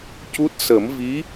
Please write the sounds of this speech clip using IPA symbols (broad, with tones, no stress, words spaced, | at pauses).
cu˦˥t̚ sə˨˩˦m vi˧˥